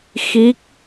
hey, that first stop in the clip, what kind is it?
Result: plain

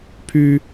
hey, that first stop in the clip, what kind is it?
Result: aspirated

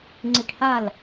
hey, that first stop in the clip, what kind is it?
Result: click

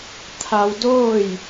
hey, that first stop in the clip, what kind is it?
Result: aspirated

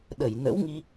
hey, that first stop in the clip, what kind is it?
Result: implosive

